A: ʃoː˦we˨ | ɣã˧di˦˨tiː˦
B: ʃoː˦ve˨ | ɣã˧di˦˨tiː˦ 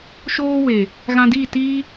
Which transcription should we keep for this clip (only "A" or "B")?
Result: A